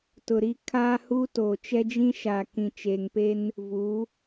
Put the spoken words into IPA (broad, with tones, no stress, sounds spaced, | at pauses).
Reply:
t ʊ˨ ɾ i˦ kʰ aː˦ h uː˦ t oː˨ t͡ʃ ɛ˦ d͡ʒ ĩ˦ ʃ aː˨ k ĩ˨ t͡ʃ eː˨ ŋ p e˦ n | v u˨˦